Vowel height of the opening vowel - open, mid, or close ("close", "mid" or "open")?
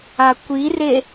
open